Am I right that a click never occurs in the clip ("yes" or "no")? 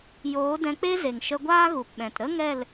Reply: yes